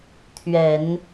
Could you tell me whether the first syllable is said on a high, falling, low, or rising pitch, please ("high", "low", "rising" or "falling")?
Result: low